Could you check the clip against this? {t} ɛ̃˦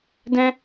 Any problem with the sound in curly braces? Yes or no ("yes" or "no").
yes